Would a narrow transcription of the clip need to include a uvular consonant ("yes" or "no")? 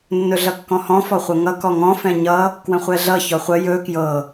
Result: yes